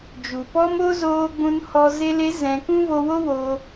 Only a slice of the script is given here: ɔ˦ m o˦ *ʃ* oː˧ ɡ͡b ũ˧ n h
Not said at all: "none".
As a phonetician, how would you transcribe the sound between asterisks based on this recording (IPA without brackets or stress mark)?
z